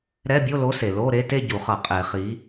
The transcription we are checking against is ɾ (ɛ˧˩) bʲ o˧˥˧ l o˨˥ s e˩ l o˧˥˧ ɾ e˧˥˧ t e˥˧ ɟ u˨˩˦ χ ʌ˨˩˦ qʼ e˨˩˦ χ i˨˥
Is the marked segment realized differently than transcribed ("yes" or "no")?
yes